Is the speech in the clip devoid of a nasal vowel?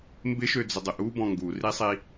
no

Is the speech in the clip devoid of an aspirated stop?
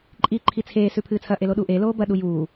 no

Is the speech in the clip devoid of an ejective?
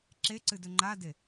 yes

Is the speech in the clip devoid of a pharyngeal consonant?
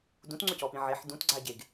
no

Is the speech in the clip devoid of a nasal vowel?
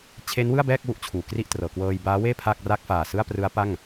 yes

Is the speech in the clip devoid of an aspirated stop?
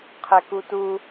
no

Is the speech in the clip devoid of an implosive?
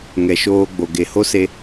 yes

